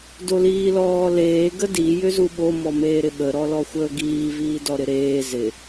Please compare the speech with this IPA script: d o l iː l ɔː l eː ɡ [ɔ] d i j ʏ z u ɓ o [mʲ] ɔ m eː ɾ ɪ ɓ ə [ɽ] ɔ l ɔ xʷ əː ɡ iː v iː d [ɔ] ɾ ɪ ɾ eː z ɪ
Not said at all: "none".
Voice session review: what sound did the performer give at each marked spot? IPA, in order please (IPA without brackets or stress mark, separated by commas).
ə, m, ɾ, ɔ